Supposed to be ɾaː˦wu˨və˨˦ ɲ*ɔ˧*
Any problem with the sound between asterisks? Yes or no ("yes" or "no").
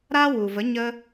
yes